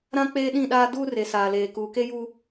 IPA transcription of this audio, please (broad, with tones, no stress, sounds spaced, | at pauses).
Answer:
ɾ ã˦ k͡p eː˦ ɗ ĩ˦˨ ɗ aː˦ d uː˦ r e˨ s aː˨ l eː˨ k uː˨ k e˦ j u˦